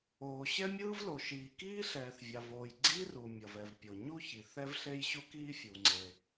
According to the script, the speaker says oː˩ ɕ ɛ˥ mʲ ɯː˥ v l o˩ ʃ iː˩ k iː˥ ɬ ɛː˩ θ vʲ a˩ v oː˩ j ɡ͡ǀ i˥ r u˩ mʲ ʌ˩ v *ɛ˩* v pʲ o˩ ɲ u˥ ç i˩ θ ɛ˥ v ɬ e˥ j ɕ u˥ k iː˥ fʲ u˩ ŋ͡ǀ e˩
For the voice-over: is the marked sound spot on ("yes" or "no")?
yes